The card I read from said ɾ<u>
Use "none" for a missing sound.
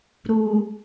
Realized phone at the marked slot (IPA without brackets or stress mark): u